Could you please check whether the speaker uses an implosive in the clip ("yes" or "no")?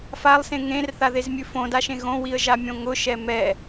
no